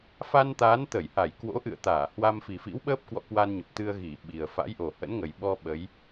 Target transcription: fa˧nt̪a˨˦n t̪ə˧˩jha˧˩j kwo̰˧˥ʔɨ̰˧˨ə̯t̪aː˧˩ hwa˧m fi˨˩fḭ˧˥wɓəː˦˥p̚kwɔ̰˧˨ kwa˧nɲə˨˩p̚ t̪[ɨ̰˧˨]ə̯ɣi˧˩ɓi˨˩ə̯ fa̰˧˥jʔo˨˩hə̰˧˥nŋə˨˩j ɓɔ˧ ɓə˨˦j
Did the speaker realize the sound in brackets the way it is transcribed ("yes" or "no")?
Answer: no